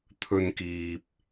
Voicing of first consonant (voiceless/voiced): voiceless